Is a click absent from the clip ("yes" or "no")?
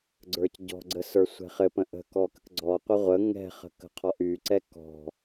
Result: no